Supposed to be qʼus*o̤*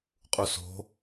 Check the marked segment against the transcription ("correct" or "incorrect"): correct